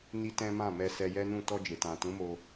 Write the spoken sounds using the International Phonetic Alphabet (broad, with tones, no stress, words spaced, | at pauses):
ni˦tɛ̃˦mã˦˨mɛ˧ sɛ˧jɛ˦nũ˦˨ tɔ˧ d͡ʒe˨tã˨ tũ˨˦mo˧